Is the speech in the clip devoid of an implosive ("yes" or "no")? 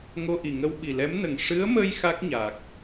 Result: no